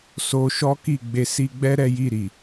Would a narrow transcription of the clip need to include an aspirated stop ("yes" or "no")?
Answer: no